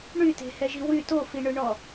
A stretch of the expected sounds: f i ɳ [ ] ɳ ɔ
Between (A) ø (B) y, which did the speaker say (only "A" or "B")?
A